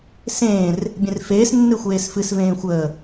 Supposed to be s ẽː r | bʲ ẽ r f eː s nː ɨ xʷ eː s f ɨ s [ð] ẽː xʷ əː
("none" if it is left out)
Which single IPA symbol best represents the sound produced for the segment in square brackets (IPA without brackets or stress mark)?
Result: v